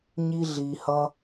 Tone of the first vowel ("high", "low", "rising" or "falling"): high